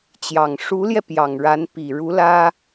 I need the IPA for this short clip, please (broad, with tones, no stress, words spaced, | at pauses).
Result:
t͡ɕjɑ˨˩ŋ ʂu˧˥ljɛ˧ pjɑ˨˩ŋɻa˧˥npi˨˩ ɻu˧˥lä˥